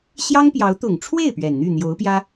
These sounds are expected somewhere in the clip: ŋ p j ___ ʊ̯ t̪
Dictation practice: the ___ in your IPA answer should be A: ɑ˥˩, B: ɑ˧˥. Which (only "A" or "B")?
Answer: B